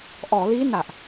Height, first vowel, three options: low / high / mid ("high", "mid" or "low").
mid